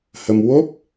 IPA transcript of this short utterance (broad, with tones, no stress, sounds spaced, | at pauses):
h ə˧ m w o˦˥ p̚